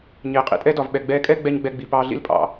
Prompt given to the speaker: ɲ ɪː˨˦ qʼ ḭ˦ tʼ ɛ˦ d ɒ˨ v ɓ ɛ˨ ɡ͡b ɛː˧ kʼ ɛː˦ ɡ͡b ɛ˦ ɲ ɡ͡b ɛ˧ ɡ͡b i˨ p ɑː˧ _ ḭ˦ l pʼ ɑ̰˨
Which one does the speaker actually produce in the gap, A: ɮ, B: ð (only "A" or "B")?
A